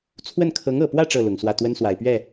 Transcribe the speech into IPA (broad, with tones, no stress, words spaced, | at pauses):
t͡sʰwə˥˩n kʰɤ˧˥ŋɤ˨˩pwä˥˧ ʈ͡ʂɤ˥˩lʊ˨˩ŋswä˥˩ t̪wə˥nswa˨˩ɪ̯pɥɛ˥˩